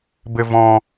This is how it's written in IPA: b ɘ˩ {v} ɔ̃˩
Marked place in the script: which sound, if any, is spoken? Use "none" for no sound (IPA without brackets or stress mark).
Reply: v